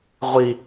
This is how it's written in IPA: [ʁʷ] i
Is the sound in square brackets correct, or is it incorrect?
correct